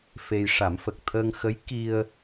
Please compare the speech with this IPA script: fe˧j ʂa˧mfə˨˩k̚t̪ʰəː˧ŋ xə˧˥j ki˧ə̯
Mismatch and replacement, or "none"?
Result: a˧ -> a˨˩˦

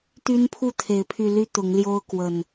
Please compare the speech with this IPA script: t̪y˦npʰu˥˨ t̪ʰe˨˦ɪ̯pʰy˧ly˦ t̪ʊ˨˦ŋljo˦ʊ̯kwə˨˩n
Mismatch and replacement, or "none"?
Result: none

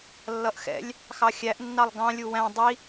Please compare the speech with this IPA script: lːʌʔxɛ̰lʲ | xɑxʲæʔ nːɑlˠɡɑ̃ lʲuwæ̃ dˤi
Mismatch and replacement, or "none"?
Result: none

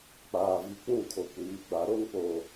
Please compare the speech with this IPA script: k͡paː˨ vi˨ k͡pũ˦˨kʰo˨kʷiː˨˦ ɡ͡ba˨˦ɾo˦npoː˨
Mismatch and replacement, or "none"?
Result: none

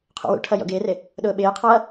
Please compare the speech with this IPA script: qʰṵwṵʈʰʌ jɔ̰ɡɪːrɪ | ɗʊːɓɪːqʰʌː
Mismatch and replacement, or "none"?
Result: none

